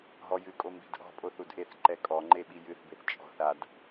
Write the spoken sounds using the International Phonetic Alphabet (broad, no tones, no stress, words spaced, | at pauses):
ɦɔjɨkʼo mbi̤dʔɔ̤pʼoθ udʔeθǃɛ kʼɔŋ͡ǃe ɓijɨθbeθ t͡ʃʼɔ̤θ ad